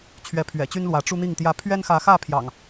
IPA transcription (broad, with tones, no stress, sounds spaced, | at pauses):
t͡ɕʰ ɥ ɛ˨˦ pʰ ɥ ɛ̰˨˩ t͡ɕ y˦ n l w ä˨˦ ʈ͡ʂ u˦ n̪ i˥˨ ŋ t̪ j ä˦ pʰ ɥ ɛ˦ n x ä˨˦ x ä˥˨ pʰ j ɑ̰˨˩ ŋ